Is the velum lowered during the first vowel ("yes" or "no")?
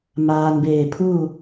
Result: no